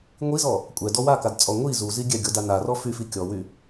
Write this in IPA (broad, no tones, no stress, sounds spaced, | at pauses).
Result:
ŋʷ i z ɔ | kʷʼ ɛ d ɔ w a k a d t͡sʼ ɔ ŋʷ i z u z i ɡʲ ɛ ɡʲ ɔ d a n a r ɔ f y f i kʲ ɔ w y